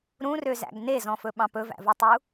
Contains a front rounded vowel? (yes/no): yes